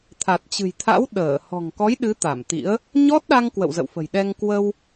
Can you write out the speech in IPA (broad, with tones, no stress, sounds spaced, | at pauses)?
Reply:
t̪ʰ a˨˩ t̚ t͡ɕ ɨ̤˨˩ j t̪ʰ a̰˧˥ w ɗ əː˧˩ h ɔ̤˨˩ ŋ k ɔ˨˦ j ɗ ɨ˨˦ t̪ a˧˩ m t̪ ḭ˧˥ ə̯ | ɲ ɔ˦˥ t̚ ɗ a˧ ŋ k w ə̰˧˨ w z ə̰˧˨ w f ə̤˨˩ j ɗ ɛ˧ ŋ k w ə˧ w